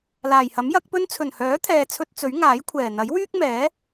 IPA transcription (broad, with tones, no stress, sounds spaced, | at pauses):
l aː˨˩ j h ɐ˨˥ m j ɐ˨˥ k̚ p ɵ˥ n t͡sʰ ɵ˨˩ n h œː˨˥ t̪ʰ ɛː˨ t͡sʰ ɵ˧ t̚ t͡s ɵ˨˥ ɥ ŋ aː˨˥ j kʷʰ ɛː˨˩ n̪ ɐ˨˥ j w yː˥ k̚ m ɛː˨˥